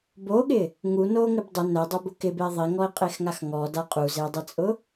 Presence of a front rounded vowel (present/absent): absent